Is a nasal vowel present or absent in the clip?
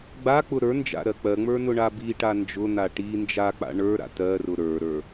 absent